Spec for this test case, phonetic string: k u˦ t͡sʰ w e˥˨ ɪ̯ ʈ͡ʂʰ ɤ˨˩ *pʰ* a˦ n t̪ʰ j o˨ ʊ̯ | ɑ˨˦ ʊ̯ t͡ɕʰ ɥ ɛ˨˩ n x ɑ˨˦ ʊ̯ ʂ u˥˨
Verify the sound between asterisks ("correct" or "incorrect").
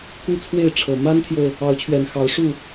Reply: incorrect